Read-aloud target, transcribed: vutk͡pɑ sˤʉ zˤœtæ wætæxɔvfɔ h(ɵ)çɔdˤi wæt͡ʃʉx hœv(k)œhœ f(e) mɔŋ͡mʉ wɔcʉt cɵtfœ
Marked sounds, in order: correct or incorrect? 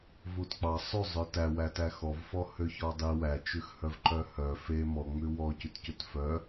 incorrect: ø, incorrect: ǃ, correct

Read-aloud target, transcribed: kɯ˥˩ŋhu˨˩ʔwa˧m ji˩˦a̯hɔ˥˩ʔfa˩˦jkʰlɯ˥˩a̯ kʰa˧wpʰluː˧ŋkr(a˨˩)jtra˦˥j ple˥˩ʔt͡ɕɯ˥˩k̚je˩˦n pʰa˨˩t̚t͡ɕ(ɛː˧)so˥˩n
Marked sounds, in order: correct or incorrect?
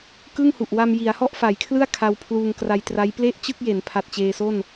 incorrect: a˧, incorrect: eː˧

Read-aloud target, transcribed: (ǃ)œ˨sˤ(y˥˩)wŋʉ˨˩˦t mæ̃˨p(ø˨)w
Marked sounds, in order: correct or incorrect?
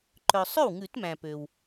correct, incorrect: ø˥˩, correct

